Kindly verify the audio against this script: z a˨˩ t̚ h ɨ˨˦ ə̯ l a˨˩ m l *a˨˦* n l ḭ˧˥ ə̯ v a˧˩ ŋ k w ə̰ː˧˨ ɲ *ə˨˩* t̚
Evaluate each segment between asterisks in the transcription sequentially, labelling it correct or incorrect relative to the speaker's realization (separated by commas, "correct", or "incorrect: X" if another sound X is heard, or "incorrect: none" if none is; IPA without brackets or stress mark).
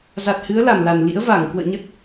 incorrect: a˨˩, incorrect: ə˦˥